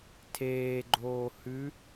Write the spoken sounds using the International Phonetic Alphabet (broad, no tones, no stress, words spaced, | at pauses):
tʰeːɡ͡ǃoː hʉ